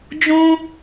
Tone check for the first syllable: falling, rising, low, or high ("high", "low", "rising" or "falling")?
high